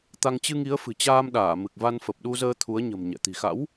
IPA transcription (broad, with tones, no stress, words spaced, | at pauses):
t̪a˧ŋ t͡ɕɨ˧ŋi˨˦ə̯fɨ̤˨˩t͡ɕaː˧m ɗaː˧˩mɨ˨˩k̚va˧n fə˨˩p̚ɗu˧zəː˧ t̪ʰu˨˦ə̯ɲə̤˨˩m ɲɛ̰˧˨ t̪i̤˨˩xa̰˧˥w